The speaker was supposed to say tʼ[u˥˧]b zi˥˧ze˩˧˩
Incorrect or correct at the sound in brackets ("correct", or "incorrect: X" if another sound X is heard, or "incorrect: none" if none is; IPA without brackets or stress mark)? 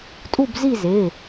correct